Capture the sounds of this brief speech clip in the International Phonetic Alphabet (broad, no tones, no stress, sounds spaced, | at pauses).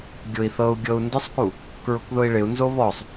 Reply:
ɡʲ ʊ i̯ θ ɤ u̯ ɡʲ ɤ u̯ n d ɪ sˤ k u | k ɹ ʊ k ð ʊ i̯ ɭ ɪ u̯ n z o β ɔ sˤ